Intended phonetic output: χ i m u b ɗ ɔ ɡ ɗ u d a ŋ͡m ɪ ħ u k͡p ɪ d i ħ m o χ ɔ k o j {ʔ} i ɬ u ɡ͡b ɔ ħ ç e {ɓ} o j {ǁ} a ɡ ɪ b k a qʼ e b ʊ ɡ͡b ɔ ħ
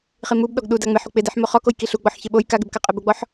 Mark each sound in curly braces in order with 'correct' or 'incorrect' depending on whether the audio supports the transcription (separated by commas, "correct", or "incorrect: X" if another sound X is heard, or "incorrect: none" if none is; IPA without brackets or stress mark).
incorrect: k, correct, incorrect: k